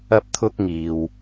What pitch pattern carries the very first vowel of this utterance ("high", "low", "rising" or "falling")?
high